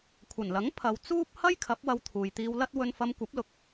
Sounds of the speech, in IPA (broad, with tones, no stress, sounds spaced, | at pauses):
kʷʰ ɐ˨˩ n l ɐ˨˥ ŋ pʰ ɐ˨˧ w t͡s uː˥ p̚ h ɐ˥ j kʰ ɐ˨˥ p̚ w ɐ˧ w t̪ʰ uː˨ j t̪ iː˧ w l ɐ˥ t̚ w ɵ˧ n f ɐ˧ m kʷ ɐ˨˥ p̚ l ʊ˨ k̚